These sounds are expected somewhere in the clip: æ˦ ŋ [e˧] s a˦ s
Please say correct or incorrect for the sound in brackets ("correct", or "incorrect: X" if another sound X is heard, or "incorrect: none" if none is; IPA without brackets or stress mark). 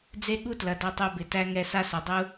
incorrect: ɛ˧